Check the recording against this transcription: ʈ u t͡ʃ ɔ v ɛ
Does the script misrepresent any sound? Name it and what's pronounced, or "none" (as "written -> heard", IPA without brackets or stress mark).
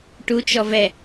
none